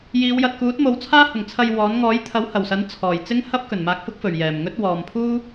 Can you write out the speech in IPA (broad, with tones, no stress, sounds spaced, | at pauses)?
j iː˨˧ w j ɐ˨ t̚ k uː˨˥ t̚ m o˨˧ w t͡sʰ aː˥ h ʊ˨˩ ŋ t͡sʰ ɐ˧ j w ɔː˨˥ n ŋ ɔː˨˥ j t̪ʰ ɐ˨˥ w h ɐ˨˩ w s ɐ˨˥ n t͡sʰ ɔː˨˩ j t͡s ɪ˥ ŋ h ɐ˥ p̚ k ɵ˨˩ n m aː˧ k̚ f ʊ˥ k̚ f ɵ˨˩ ɥ j ɛː˨˩ m ŋ ɵ˥ t̚ w ɔː˨ m pʰ uː˥